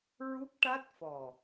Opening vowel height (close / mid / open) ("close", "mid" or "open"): close